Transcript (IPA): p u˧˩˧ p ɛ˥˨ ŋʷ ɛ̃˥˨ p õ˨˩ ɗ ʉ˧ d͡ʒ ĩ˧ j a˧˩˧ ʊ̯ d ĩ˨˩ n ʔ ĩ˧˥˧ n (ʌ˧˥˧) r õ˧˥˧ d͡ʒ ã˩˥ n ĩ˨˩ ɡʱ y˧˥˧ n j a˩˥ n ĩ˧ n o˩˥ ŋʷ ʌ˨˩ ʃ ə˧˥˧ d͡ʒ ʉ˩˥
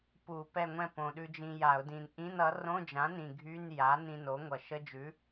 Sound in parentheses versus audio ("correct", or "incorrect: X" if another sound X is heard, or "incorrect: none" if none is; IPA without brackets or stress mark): incorrect: ʌ˩˥